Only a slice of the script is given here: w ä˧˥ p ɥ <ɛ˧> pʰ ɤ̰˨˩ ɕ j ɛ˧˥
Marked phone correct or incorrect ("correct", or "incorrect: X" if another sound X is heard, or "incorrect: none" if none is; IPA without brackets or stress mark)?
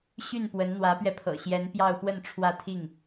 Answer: correct